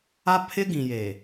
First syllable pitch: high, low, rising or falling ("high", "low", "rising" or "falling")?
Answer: high